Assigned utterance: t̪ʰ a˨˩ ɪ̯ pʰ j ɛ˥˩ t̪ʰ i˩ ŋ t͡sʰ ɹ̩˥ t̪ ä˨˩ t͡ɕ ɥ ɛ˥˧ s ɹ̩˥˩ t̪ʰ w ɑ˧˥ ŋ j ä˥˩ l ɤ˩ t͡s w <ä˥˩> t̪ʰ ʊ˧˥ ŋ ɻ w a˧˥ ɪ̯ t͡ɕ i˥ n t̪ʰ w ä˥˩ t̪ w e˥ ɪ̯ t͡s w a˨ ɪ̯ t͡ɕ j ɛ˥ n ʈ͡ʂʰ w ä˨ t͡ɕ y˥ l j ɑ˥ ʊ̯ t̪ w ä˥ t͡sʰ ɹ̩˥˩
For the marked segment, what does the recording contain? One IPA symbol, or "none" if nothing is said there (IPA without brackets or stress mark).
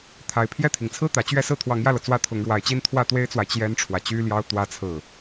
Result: ä˥˩